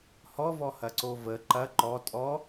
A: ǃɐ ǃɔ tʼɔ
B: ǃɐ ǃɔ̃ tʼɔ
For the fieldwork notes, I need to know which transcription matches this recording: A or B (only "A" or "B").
A